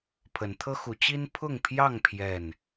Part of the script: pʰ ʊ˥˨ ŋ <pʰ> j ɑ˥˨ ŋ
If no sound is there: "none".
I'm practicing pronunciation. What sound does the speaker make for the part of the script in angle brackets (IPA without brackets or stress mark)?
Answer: pʰ